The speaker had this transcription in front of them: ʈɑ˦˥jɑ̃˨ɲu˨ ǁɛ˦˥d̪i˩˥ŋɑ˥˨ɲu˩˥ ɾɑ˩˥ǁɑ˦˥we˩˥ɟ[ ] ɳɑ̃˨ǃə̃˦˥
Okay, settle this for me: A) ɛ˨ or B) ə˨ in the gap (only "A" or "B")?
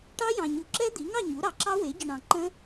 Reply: B